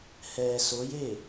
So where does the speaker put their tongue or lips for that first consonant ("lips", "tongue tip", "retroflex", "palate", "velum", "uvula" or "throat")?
throat